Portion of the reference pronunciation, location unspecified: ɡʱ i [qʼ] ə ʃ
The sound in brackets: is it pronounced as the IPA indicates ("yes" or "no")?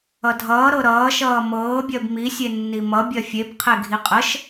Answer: yes